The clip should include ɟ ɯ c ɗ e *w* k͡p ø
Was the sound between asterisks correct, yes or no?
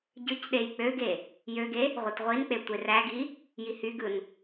no